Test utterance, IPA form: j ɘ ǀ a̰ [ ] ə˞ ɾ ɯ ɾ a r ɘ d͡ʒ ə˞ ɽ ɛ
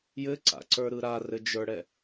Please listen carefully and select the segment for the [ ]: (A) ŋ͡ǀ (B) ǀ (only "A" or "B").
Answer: B